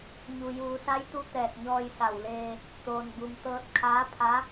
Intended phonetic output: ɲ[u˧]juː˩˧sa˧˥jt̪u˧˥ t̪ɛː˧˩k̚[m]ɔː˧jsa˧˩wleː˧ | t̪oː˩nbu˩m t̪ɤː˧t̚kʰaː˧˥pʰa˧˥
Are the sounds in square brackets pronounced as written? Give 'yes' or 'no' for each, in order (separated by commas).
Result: no, no